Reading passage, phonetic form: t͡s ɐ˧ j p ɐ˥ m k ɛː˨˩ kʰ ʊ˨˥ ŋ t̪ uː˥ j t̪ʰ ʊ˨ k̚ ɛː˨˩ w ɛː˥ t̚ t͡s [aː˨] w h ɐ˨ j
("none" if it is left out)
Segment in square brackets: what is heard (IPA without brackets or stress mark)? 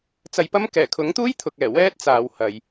aː˨